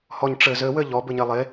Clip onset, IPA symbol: h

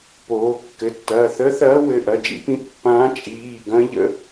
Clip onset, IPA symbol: p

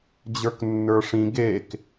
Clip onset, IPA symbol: d͡ʑ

